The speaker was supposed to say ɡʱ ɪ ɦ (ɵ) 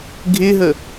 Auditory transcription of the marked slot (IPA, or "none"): ə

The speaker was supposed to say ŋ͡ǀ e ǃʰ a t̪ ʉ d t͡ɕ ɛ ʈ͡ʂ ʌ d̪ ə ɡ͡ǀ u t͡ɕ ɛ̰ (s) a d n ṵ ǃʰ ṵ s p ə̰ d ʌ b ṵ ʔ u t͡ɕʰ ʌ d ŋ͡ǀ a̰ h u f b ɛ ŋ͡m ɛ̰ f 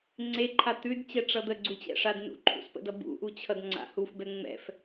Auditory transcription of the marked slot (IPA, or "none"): ʂ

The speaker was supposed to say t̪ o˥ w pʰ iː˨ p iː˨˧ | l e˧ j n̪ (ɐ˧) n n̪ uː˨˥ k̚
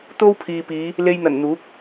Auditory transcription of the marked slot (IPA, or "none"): ɐ˨˩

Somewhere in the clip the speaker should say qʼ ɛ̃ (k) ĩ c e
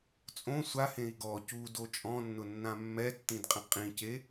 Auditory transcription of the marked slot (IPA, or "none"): qʼ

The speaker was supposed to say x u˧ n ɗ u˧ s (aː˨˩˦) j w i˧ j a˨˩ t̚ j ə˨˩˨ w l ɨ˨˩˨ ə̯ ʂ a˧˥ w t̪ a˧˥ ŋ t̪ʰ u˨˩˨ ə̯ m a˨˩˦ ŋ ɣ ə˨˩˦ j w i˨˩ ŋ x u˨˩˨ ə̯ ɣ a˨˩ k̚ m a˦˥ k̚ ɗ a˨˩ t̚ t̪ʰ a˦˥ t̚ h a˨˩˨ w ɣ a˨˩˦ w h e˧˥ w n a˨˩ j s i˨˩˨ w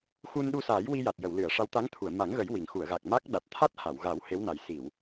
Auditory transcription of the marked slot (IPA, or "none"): aː˨˩˦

